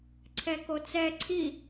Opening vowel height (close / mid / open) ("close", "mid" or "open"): mid